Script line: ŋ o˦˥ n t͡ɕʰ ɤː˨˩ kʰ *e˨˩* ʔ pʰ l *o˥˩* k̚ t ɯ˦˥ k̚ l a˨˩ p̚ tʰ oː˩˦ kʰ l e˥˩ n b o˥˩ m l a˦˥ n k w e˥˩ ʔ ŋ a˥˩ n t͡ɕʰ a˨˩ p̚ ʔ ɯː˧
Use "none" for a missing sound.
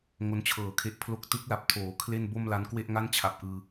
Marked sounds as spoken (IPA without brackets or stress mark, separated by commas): e˦˥, o˥˩